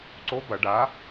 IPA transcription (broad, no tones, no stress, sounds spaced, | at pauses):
ǀ o b ɐ ɖ a